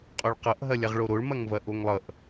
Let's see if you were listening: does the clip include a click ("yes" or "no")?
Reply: no